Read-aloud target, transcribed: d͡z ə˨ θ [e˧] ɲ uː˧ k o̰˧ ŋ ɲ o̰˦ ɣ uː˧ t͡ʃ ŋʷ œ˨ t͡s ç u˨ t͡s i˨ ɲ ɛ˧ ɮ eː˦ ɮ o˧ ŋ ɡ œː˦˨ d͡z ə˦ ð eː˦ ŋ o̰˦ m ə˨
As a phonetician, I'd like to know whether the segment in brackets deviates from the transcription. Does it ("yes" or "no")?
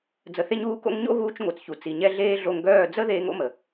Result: no